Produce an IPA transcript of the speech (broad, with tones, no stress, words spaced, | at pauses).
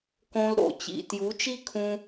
kõ˧lɾo̰˨t͡ɕḭ˨ tju˨˦t͡ʃi˦kʰũ˧